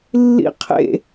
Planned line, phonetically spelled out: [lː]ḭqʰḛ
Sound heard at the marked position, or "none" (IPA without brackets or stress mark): lː